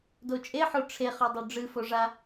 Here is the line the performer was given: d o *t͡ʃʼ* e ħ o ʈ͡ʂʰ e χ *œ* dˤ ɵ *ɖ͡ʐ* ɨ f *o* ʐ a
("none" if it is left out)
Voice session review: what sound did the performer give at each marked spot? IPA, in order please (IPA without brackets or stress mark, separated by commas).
t͡ʃʼ, ɵ, ɖ͡ʐ, o